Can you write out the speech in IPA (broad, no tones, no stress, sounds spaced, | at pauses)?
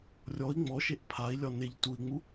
rʲ ɔ i̯ ŋ͡m ɔ ʃ e ʔ pʰ a i̯ lʲ ɒ n e ʎ t u i̯ ŋ͡m u